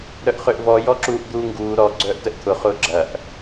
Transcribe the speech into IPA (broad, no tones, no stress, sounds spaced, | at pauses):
ɾ œ ʔ χ ø ʔ v ɔ j ɔ ǁ uː ʔ d̪ uː ŋ ɡ uː ɾ ɔ ɡ͡ǀ œː ʔ t ə ʔ t̪ʰ ʊ χ ʊː ɡ͡ǁ ɐ ʔ